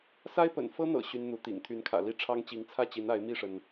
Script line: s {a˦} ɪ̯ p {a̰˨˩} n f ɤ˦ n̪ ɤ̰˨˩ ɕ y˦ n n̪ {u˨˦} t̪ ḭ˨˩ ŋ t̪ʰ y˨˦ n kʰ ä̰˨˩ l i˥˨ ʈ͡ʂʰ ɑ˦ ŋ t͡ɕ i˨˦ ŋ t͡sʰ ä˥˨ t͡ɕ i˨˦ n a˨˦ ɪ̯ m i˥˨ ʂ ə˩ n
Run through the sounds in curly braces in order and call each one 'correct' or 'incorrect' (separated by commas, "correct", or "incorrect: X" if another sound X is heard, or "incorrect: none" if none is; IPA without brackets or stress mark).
correct, incorrect: ə̰˨˩, correct